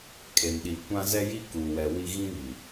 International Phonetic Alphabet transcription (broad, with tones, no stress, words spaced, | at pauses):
kʼe˨mɗi˨ kʷã˦zɛ˦ji˦ ku˨wɛ˨ wi˦ ɣĩ˦βi˨